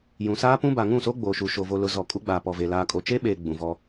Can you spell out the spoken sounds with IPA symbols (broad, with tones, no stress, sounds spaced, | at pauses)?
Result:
j ũ˨ s aː˦ p ũ˦ b a˨ ŋ ũ˦˨ s o˦ ɡ͡b oː˨ ʃ u˨ ʃ o˨ v o˨ l ʊ˨ z ɔ˨ kʼ u˦ ɡ͡b a˨ p ɔ˨ v e˨ l aː˨ kʼ o˨ t͡ʃ e˦ ɓ eː˨ ɡ͡b ũ˨ v ɔ˦